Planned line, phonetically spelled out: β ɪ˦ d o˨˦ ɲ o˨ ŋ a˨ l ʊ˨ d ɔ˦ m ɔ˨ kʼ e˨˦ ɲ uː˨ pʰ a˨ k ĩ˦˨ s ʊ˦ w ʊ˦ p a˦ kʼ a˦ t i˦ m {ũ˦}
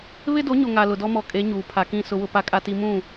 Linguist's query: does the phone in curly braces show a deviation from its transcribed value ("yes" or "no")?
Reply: yes